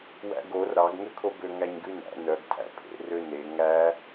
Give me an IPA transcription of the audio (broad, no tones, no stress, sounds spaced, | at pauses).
w æ̰ ɡ o r ɾ ɑ ɡ ŋ ø kʰ o b ø ŋ æ ɲ ɡ ʉ n æ̰ n œ ɡ tʰ æ̰ pʰ ḛ r ø n e ŋ æ